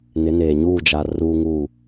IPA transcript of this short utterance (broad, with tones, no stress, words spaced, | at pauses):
nɪ˨˦neː˨ ɲuː˦˨d͡ʒa˨ ruː˦ŋuː˦˨